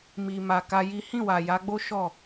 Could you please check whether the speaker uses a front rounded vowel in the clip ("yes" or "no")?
no